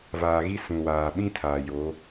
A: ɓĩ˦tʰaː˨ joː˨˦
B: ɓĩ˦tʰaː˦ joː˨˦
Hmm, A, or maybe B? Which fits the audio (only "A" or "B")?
A